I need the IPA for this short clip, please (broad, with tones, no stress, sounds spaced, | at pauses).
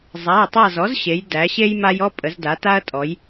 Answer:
zˤ a˩˧˩ ɐ̯ tˤ a˦˨ z ɔ˩˥ z ɕ e˩˧ j d æ˩˧ ɕ e˦ j m a˦ j ɔ˦ pʼ ə˩˧ z d a˩˧ t a˦ ɐ̯ tʼ ɔ˩˧ j